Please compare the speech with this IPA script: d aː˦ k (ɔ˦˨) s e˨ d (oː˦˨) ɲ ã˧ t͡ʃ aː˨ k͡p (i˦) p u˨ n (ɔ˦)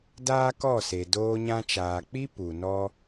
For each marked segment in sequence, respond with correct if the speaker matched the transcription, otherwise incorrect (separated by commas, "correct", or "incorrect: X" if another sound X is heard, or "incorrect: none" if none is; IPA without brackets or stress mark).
correct, incorrect: oː˧, correct, correct